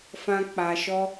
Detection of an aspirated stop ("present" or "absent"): absent